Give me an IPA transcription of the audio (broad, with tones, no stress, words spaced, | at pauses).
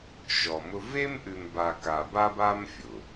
ʃɔ˨mʊ˦ ve˦mʔʉ˨mba˨ ka˨ba˦ba˦mfʲʊ˨